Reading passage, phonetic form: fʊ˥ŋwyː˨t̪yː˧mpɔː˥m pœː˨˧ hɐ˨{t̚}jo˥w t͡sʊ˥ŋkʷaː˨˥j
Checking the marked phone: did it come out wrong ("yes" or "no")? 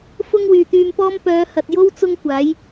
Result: no